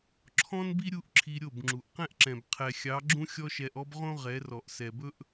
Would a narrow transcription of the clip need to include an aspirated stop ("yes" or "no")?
yes